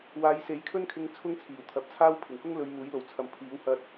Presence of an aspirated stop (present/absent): present